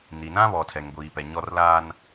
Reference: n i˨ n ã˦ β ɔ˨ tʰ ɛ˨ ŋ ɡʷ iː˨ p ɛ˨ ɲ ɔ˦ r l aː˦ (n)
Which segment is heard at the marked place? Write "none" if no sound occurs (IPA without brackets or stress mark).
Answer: n